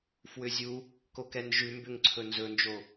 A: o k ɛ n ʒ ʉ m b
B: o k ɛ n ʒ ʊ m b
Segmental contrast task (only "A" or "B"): A